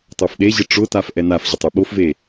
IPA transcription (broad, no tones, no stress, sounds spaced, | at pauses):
tˤ o f ɗ e ʑ ɪ ʈ͡ʂ ʊ t a f ʔ ɛ n a f ʑ ʊ tˤ e ɓ o f v e